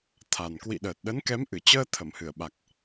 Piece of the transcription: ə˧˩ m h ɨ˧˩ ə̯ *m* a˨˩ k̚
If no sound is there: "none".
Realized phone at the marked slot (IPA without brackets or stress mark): ɓ